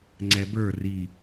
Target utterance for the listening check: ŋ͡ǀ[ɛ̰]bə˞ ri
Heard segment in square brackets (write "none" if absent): ɛ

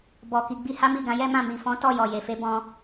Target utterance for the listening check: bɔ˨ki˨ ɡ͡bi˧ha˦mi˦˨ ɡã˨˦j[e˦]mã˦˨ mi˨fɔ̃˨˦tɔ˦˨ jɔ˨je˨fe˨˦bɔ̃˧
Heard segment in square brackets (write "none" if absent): ɛ˦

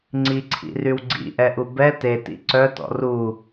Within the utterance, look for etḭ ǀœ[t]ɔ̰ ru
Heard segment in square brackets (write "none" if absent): t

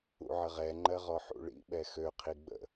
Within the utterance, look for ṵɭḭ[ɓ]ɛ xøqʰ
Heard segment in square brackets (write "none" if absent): ɓ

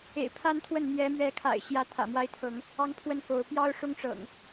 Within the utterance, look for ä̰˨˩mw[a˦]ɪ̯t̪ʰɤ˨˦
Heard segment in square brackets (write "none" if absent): a˦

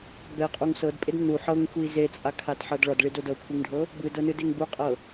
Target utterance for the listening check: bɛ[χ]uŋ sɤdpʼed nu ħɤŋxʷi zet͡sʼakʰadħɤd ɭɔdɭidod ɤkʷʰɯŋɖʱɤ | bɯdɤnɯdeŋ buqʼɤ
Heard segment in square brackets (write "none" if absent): qʼ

